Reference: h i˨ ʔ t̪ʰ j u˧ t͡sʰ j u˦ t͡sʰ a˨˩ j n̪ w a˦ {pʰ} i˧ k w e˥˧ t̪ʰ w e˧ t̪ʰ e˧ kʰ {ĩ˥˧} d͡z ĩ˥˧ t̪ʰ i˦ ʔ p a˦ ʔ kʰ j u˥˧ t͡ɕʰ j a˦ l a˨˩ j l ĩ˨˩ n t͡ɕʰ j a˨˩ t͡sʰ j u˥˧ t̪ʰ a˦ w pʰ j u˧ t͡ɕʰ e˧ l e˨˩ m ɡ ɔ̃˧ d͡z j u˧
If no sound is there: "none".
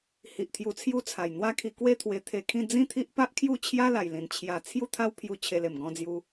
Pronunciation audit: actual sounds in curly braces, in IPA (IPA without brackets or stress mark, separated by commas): kʰ, ĩ˥˧